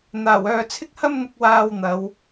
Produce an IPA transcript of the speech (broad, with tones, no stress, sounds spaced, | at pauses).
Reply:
n̪ aː˨˩ w œː˨ t͡sʰ ɪ˥ k̚ h ɐ˥ m n̪ ɪ˧ k̚ w aː˧ w n̪ ɐ˨˧ w